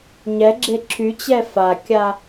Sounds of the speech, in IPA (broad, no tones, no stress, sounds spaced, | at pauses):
ɲ ɛ ɡ͡ǁ e ǁʰ y t͡ɕ ɛ f a kʲ a